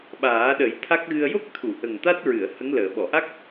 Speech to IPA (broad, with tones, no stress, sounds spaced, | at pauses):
ɓ aː˨˩˦ ɗ ə˨˩˦ j t̪ʰ a˦˥ k̚ ɣ ɨ˧ ə̯ j o˦˥ k̚ t̪ʰ u˨˩˨ ʔ ə˨˩ ŋ t̪ a˦˥ t̚ ɹ ɨ˨˩˨ ə̯ h ə˧˥ ŋ l əː˨˩˨ ɓ ɔ˨˩˨ ʔ a˦˥ k̚